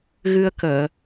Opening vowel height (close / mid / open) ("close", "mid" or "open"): close